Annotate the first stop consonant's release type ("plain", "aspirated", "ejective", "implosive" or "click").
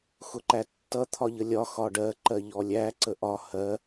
click